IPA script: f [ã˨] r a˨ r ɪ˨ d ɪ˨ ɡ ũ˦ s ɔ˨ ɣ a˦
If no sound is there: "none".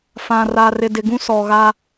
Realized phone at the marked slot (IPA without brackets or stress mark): ã˨